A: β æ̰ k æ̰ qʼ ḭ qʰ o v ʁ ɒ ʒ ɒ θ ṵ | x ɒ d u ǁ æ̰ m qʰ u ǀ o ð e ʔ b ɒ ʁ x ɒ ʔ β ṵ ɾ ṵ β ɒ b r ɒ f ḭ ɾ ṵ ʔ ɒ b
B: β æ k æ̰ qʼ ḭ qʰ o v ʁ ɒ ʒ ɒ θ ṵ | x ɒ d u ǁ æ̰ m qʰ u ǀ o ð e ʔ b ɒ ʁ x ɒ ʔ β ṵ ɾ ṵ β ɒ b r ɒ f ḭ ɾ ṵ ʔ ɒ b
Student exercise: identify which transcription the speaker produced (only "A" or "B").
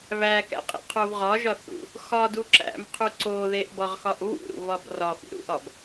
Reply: B